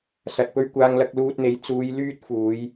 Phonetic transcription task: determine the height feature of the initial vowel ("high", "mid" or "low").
low